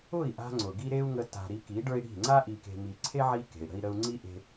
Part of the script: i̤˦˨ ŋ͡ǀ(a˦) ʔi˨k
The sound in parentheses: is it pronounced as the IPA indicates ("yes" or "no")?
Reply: yes